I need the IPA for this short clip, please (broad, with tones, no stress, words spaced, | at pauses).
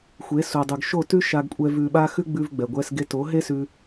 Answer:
xʷe˨˦su˨dˤʉ˨ɡ ʃo˦˨ tʉ˦ʃa˧ɡkʷʼɛ˧ vʉ˨ɓa˧ xʉ˦ɡ͡bʉ˧v ɡ͡bɛ˨ɡʷɛ˦sɡe˦ to˨˦ɦe˦ sʉ˧